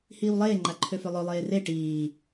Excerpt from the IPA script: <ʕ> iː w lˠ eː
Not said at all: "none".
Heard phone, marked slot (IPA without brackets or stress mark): h